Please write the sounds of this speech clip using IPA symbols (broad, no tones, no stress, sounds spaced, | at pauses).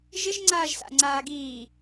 ʒ ɪ ʒ ŋ͡ǀ aː ʒ s a̰ ŋ͡ǀ aː ɡ iː